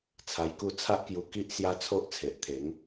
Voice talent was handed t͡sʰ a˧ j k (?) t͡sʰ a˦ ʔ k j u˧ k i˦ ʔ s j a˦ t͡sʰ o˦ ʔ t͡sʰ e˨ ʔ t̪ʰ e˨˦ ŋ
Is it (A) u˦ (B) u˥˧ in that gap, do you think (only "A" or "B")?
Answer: B